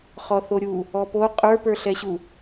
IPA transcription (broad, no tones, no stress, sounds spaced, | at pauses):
χ ɔ θ o ɾʲ u | ɔ p o qʼ ə˞ p ə˞ ɬ ɛ ɕ u